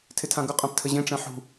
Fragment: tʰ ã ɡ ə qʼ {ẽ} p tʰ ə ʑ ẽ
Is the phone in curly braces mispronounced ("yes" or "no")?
yes